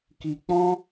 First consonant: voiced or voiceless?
voiceless